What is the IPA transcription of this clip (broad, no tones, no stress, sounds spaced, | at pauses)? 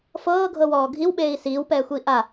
f ɤː ɡʱ ɤ w ɔː ɡʱ i w ɓ eː i̯ s iː w p ɛː xʷ iː ʔ a